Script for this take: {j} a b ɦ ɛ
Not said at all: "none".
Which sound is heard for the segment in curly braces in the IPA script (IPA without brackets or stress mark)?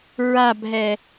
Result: ɹ